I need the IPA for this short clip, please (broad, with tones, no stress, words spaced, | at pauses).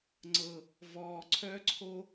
ŋ͡ǀɤ˨ | vɔː˨ǀʰœ˦ǀʰo˦